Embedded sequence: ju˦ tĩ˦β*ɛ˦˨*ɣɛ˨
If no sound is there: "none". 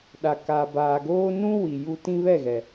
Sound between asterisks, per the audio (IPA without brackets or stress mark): ɛ˦˨